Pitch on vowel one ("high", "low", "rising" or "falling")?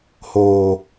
low